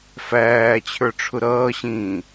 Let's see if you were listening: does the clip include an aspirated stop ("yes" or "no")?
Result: yes